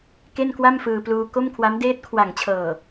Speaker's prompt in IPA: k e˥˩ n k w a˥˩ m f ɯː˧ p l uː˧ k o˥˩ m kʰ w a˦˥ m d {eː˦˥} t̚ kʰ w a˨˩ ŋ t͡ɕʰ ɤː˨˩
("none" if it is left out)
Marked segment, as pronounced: eː˦˥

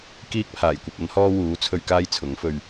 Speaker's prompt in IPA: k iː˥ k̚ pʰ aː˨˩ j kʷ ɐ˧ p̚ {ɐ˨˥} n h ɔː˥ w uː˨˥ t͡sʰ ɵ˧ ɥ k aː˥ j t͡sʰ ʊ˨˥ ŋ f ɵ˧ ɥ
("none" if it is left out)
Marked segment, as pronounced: ɐ˨˥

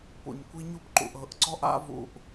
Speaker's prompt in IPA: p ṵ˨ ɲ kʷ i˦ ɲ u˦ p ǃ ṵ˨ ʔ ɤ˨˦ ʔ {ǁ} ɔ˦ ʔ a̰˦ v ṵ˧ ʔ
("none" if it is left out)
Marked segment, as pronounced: ǀ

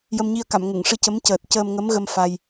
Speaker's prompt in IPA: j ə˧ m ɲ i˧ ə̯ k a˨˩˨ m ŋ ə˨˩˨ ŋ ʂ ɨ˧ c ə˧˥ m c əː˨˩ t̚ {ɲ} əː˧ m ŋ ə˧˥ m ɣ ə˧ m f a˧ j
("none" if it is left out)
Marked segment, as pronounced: c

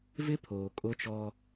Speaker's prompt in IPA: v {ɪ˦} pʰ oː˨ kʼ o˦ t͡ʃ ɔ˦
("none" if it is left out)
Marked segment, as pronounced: ɪ˦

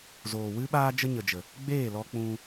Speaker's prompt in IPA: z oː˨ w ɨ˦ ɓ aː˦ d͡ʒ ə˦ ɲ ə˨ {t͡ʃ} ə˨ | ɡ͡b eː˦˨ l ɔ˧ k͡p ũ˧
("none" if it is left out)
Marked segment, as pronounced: d͡ʒ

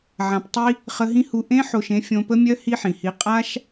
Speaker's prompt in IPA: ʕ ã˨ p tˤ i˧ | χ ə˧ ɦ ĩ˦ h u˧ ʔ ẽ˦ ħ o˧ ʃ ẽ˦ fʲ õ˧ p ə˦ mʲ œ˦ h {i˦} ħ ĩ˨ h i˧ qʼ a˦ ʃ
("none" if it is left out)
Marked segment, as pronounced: i˦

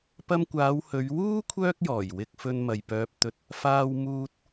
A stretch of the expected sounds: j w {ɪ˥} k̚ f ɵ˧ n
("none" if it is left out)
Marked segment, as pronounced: ɪ˧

